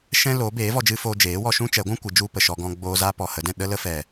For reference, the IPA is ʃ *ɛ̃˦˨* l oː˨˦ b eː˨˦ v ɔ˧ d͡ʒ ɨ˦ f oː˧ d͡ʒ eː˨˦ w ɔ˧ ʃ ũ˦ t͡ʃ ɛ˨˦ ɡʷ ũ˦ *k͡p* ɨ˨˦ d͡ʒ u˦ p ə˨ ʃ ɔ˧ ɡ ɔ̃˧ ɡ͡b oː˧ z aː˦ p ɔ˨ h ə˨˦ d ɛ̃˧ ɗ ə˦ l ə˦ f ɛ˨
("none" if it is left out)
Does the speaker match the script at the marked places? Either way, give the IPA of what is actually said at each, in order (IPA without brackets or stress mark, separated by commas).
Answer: ɛ̃˦, kʷ